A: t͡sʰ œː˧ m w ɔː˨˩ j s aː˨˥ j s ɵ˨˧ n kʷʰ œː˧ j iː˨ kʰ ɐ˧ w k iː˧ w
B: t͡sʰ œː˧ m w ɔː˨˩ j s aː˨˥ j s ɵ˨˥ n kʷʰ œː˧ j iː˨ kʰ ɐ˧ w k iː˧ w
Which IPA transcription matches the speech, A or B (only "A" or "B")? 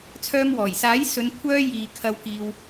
A